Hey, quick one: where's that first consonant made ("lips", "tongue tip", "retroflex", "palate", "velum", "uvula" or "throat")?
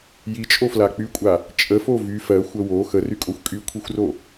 palate